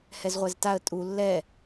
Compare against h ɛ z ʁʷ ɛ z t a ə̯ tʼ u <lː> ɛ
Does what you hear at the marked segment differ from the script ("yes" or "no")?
no